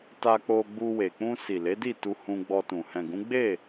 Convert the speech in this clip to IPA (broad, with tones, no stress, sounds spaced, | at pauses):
t a˧ k͡p o˧ ɡ͡b u˧ w e˨ k͡p ũ˧ s i˨ l e˨˦ d i˦˨ t u˧ h ũ˧ ɡ͡b ɔ˧ t ũ˨ h ɛ̃˨ ɡ ũ˨˦ ɡ͡b e˦˨